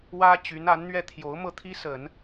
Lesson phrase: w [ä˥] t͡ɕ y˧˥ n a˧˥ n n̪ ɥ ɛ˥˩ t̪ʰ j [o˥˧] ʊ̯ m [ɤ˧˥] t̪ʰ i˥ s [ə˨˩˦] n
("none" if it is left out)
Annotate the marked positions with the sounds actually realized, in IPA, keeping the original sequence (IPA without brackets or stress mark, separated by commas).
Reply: ä˥, o˧˥, ɤ˥˩, ə˨˩˦